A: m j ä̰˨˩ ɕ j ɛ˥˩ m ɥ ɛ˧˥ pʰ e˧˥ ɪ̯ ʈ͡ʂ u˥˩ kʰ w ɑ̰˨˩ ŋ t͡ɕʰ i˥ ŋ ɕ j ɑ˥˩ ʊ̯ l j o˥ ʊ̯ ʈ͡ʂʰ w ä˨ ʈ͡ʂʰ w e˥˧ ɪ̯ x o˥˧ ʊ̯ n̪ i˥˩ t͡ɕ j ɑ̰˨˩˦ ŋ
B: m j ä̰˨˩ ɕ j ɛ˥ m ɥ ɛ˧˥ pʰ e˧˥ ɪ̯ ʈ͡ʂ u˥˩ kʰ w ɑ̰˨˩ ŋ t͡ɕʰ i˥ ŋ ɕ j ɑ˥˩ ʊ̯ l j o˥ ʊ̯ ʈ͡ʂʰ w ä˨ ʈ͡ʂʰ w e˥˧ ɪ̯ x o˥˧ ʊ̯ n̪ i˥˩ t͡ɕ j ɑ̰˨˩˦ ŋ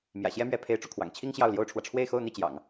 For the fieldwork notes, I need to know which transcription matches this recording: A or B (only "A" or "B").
B